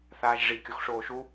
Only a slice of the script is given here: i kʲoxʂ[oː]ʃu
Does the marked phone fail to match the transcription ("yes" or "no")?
no